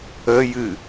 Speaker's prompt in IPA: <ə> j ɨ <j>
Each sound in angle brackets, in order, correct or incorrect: correct, incorrect

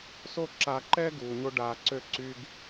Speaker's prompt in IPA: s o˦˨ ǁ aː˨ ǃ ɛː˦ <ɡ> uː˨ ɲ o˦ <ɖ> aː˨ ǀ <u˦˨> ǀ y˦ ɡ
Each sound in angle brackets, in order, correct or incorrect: correct, correct, incorrect

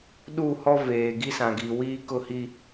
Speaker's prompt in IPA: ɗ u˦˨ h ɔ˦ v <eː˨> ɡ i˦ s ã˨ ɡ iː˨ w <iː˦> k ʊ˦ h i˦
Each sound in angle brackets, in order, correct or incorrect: correct, correct

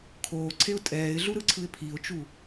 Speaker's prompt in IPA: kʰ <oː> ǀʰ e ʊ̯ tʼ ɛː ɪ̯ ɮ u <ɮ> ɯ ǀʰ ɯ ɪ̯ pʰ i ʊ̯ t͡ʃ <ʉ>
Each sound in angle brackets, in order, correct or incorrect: correct, incorrect, incorrect

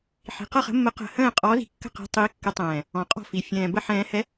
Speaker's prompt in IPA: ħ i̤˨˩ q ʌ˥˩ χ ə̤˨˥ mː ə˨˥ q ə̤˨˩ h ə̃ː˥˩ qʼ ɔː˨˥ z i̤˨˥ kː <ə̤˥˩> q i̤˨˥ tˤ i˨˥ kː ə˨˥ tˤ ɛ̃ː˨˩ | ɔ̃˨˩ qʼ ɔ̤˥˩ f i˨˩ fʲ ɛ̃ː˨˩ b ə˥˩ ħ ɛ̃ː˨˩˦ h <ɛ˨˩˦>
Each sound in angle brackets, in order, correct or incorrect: correct, incorrect

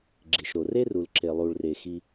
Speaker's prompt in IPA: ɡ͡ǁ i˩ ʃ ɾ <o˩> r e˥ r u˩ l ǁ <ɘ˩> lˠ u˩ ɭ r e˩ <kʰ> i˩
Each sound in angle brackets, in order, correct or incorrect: correct, incorrect, incorrect

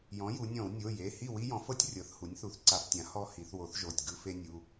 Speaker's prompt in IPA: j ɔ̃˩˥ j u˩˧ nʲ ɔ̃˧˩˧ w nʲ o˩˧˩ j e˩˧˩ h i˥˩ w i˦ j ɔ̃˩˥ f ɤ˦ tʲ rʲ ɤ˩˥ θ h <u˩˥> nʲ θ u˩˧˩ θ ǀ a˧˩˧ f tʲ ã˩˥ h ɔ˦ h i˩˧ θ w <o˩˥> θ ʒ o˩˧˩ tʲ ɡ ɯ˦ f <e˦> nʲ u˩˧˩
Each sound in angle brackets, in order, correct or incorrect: correct, correct, correct

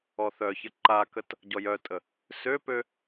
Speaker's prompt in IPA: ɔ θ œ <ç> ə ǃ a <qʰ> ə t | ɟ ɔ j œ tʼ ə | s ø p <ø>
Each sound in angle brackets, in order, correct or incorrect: correct, incorrect, correct

